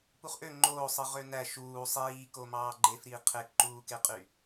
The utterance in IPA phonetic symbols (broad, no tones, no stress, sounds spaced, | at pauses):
p u χ ʔ ø ŋ͡ǃ oː sˤ ɯ ʁ ø n æ ʃ uː sˤ iː k o m ɑː ɡ͡ǃ e f ɾ iː qʰ e k ǃ uː k e qʼ y